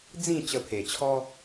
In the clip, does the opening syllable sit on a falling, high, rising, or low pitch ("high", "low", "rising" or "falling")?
falling